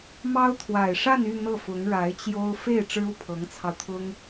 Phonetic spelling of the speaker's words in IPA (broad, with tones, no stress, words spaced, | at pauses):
mɑ˥ʊ̯t̪ʰwa˨˩ɪ̯ ʂa˥˧ny˥˧ n̪ɤ˥˩fʊ˧˥ŋɻa˧˥ɪ̯t͡ɕjo˥ʊ̯ fe˥˩ɪ̯ ʈ͡ʂɻ̩˥u˥˩ pʰɤ˧˥ŋt͡sʰɑ˧ʊ̯t̪ʰʊ˥ŋ